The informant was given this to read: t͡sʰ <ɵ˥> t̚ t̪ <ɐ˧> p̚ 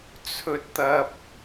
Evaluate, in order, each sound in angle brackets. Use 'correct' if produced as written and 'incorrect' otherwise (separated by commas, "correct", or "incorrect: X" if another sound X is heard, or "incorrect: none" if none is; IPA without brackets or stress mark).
correct, incorrect: ɐ˥